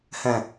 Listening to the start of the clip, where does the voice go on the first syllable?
low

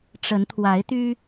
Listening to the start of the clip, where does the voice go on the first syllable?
rising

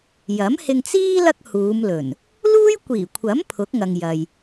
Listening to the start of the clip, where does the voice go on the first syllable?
rising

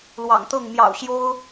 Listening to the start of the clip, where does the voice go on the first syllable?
low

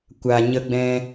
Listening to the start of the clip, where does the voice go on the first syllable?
low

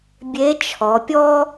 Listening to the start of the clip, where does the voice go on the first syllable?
rising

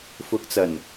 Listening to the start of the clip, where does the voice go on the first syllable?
rising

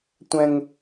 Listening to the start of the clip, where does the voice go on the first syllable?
high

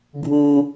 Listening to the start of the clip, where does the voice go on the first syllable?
low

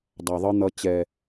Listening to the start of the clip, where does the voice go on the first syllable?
low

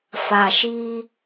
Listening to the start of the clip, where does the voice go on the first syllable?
low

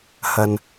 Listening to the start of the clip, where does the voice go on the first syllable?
low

